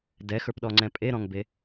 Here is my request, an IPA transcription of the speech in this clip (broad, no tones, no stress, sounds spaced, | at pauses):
d ɛ x ə˞ p ɗ ɔ ŋ͡ǀ ɛ̃ pʼ e ɾ ɔ̃ ŋ b e